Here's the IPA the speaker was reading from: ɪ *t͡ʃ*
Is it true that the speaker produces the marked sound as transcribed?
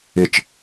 yes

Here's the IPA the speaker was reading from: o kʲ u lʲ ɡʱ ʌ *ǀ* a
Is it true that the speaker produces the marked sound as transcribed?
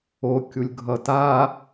no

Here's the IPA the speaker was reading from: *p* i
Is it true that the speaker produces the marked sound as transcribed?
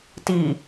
no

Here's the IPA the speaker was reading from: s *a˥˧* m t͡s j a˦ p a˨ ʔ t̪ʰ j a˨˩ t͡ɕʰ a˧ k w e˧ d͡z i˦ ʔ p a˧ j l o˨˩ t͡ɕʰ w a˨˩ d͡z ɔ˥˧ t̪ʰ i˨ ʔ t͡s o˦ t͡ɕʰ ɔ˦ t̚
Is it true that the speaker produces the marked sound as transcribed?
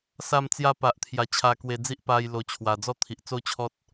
yes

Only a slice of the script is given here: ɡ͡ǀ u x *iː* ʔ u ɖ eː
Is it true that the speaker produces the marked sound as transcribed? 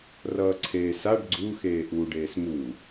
no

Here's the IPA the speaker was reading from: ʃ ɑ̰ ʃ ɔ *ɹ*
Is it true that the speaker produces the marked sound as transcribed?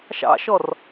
no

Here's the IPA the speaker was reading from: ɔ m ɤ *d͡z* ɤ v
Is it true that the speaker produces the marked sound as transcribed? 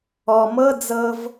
yes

